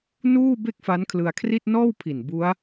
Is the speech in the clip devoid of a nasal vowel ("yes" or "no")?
yes